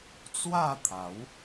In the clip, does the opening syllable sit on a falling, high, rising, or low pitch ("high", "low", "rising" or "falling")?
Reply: falling